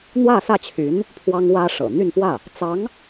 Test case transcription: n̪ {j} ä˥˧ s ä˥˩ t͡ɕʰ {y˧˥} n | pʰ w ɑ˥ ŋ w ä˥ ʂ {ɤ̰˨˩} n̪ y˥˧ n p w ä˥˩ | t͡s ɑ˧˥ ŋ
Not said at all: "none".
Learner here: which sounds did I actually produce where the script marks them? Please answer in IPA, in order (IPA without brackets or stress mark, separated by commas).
w, y˧˥, ɤ̰˨˩